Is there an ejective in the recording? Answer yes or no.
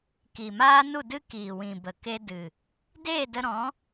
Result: no